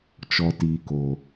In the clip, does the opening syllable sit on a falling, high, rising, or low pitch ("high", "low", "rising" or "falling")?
low